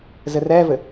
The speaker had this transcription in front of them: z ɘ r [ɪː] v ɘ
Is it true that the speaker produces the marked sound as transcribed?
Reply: no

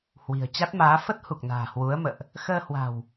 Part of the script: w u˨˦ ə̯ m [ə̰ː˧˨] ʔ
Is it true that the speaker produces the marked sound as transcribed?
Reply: yes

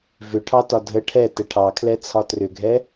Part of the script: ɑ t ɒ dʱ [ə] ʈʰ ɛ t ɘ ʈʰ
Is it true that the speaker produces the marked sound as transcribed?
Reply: yes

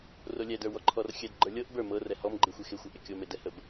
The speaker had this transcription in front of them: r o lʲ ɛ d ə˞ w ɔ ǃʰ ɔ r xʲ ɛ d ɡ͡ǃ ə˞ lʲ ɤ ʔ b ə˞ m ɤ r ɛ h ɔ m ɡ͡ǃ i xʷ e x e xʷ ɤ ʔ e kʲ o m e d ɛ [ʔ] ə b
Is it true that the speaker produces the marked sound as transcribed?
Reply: no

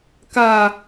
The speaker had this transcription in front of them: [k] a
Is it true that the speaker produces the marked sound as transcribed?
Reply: yes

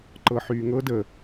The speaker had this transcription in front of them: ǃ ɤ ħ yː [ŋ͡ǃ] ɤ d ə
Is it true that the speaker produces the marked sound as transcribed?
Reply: no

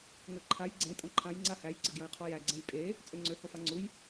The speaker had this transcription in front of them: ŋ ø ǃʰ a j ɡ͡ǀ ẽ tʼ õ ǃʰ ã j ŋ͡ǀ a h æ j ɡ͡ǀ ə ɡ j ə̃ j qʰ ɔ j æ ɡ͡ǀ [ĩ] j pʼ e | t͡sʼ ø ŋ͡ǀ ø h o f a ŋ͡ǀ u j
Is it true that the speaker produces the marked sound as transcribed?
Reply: no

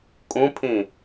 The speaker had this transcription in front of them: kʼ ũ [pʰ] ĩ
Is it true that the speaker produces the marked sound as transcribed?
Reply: yes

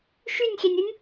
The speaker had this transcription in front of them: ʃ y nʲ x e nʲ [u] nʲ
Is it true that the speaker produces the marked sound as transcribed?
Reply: no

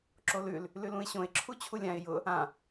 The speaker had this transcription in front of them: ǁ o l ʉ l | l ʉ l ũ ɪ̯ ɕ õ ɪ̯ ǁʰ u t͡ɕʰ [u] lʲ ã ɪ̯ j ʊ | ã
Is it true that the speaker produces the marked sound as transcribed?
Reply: yes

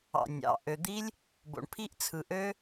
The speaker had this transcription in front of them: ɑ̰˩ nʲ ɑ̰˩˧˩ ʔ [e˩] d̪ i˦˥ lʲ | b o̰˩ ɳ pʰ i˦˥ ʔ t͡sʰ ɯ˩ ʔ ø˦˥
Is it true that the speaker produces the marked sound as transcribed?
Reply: no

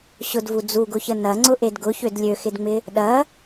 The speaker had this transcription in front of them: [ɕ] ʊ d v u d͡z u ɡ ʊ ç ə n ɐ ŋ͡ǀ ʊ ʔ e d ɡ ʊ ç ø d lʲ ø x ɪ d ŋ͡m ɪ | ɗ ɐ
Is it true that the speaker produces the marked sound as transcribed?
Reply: yes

